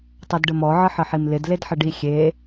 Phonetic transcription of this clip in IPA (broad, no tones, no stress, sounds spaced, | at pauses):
tˤ ɛ d ɖ ə m ɔ ʕ ə ħ ə ħ i m l ɪ d l e d ħ ə ɖ i xʲ e